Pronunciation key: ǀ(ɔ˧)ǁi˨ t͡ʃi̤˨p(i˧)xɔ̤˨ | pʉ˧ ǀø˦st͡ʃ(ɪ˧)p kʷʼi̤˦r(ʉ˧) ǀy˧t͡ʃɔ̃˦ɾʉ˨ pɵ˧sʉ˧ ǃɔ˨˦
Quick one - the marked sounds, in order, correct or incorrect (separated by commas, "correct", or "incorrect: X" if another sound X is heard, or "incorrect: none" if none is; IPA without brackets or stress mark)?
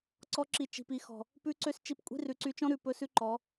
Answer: correct, incorrect: i˨, incorrect: i˧, incorrect: ʉ˨˦